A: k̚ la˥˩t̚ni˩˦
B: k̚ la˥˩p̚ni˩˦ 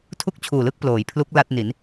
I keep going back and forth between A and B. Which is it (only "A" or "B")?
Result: A